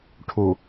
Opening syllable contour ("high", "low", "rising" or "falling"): low